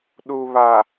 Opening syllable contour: low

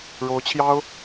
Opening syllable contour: rising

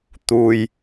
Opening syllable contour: low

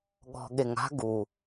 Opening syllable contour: low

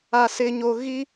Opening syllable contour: low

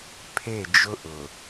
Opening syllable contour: falling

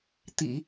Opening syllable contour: low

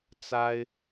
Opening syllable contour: high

